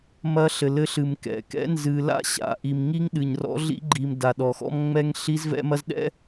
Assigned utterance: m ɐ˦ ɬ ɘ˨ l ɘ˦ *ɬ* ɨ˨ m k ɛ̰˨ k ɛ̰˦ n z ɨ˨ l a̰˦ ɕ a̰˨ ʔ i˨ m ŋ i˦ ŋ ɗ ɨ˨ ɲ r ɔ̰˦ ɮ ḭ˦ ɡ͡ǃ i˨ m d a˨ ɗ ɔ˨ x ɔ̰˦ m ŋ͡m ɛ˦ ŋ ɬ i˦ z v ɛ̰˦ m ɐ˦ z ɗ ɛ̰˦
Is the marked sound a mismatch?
no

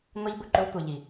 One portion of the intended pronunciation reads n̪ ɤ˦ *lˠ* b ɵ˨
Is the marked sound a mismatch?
yes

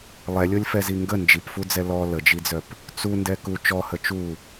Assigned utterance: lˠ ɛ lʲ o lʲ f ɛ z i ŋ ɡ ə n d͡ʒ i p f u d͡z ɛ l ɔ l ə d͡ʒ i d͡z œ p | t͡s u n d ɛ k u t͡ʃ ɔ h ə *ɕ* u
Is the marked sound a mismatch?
yes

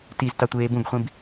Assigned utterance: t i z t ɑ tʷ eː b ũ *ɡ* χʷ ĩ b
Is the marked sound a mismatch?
no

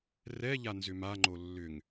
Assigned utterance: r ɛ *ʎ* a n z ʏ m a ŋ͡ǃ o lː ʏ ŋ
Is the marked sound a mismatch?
no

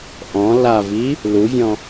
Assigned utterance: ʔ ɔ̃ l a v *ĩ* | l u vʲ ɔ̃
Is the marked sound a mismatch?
yes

